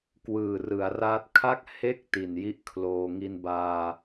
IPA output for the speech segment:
k w ɯː˨˩ r ɯ˩˦ a̯ r aː˦˥ t̚ kʰ a˥˩ k̚ h e˥˩ k̚ t i˨˩ n j i˥˩ ʔ kʰ l oː˧ ŋ i˧ n b aː˧

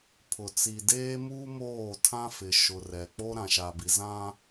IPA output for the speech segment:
pʰ ʊ˨ t͡s i˨ d eː˦ m uː˦ m oː˦˨ tʰ ã˦ f ɪ˨ ʃ ʊ˨ r ɛ˨ k͡p o˦ ɾ ã˨ ʃ a˨ b i˨ z ã˦

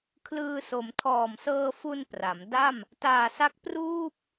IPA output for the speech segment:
kʰ l ɯː˧ s o˩˦ m tʰ ɔː˨˩ m s ɤː˧ f u˧ n p r a˩˦ m d a˥˩ m | t aː˨˩ s a˥˩ k̚ p r uː˥˩ p̚

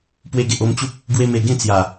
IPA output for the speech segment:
p w e˧ ɡ e˨ ʔ o˧ m t͡ɕ u˦ p̚ | ɡ w e˧ m e˨˩ ɡ ẽ˥˧ t͡s j a˨˩

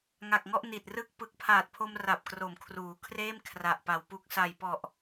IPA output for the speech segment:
ŋ a˨˩ k̚ ŋ ɔ˥˩ ʔ n i˨˩ t̚ r ɯ˥˩ k̚ p ɯ˨˩ k̚ pʰ aː˨˩ t̚ pʰ o˧ m r a˨˩ p̚ k r o˩˦ m kʰ r uː˩˦ kʰ r eː˥˩ m kʰ r a˨˩ ʔ p a˨˩ w p u˨˩ k̚ s a˨˩ j p ɔ˨˩ ʔ

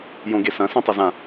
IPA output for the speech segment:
j õ ɡ e s ɐ̃ s ẽ tˤ ɐ z ã

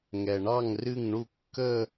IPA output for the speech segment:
ŋ ɛ˩ ɳ ɑ˥˩ ŋ r ɨ˥˩ ŋ ɳ u˥˩ kː ə˥˧

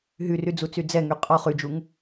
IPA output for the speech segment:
ɦ y r y d͡z u t͡s y d͡z ɛ ŋ y qʼ ɔ χ y d͡ʒ u ŋ

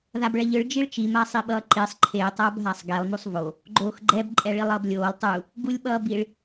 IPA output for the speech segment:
ð a b ɭ ɛ ʎ ɯ ɭ d͡ʒ i ɭ t͡ʃ i m a sˤ i ɓ ʌː ǃ i sˤ ǃʰ e tˤ ʌː b ɦ a sˤ ɡ ɛ lˠ m u sˤ v o | ɡ͡ǃ oː x ɡ͡ǃ ɛ b ǃʼ ɛ ɭ i lˠ ʌː b lʲ oː lˠ tˤ u | ɡ u lʲ ɓ ʌː b i ɭ

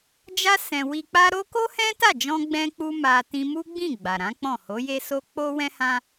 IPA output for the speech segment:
d͡ʒ a˦ s ɛ̃˧ w i˧ k͡p a˦ ɾ o˦ k o˦ h ɛ̃˦ t a˦˨ d͡ʒ ɔ̃˧ ɡ͡b ɛ̃˦ k͡p u˦ m a˧ t ĩ˧ m u˦ ɡ͡b ĩ˦˨ ɡ͡b a˨ ɾ ã˨˦ k͡p ɔ̃˦˨ h o˨˦ j e˦ s o˦ k͡p o˦ w ɛ̃˦ h ã˦

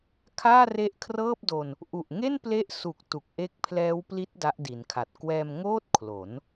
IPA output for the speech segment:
kʰ aː˥˩ r e˦˥ ʔ kʰ r ɤː˥˩ p̚ d o˧ n | ʔ u˨˩ ʔ ŋ e˥˩ n p l e˦˥ ʔ s u˨˩ k̚ t u˨˩ k̚ ʔ e˦˥ k̚ pʰ l ɛː˦˥ w p l i˦˥ t̚ d a˦˥ ʔ d i˩˦ n kʰ a˨˩ t̚ k w ɛː˧ m ŋ oː˥˩ t̚ kʰ l o˩˦ n

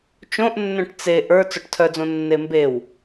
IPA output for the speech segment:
t͡ʃ õ ʔ nː œ̃ ʈ t͡s e ʔ ə˞ t͡s ɔ ʈ tʰ œ d͡z õ nː e m b e w

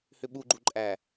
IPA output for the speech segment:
h ʏ ɓ u ɡ͡ǃ u ǃʼ æ

